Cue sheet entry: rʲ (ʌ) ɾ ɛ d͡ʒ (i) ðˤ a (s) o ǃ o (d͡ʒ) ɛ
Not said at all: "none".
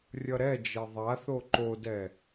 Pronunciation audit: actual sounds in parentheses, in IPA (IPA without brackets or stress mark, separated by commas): ʌ, e, θ, d